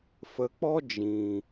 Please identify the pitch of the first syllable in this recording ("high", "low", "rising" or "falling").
low